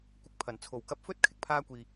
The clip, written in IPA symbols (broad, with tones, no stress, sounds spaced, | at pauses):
kʷ ɪ˨ k̚ pʰ ɐ˨˩ n t͡sʰ o˨˩ w k ɐ˧ p̚ f ɵ˥ t̚ kʰ ɪ˨˥ k̚ pʰ aː˧ kʷ iː˨